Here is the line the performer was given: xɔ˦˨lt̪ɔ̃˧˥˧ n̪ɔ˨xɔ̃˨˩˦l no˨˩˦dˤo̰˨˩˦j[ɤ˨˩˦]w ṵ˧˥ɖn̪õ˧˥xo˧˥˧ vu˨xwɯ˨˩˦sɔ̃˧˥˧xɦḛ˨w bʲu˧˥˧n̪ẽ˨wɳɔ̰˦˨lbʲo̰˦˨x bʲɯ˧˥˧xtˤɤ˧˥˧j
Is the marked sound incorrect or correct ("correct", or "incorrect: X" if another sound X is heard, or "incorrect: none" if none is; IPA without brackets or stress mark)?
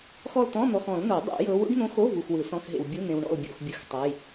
incorrect: ɤ˧˥